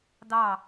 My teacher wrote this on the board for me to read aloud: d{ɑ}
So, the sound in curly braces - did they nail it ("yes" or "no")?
yes